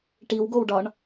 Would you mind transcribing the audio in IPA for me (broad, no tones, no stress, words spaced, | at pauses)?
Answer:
ʈiwɡowɖɒɳ